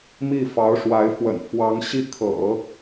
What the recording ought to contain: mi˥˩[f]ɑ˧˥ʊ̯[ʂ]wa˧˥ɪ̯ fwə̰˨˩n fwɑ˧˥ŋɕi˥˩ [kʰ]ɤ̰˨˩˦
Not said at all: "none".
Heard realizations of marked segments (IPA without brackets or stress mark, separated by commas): f, ʂ, kʰ